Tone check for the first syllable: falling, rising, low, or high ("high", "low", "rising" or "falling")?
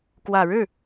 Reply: low